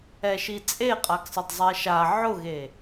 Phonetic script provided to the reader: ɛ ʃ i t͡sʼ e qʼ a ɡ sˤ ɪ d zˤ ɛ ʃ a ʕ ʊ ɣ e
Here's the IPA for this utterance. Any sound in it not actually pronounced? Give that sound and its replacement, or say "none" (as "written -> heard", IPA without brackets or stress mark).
none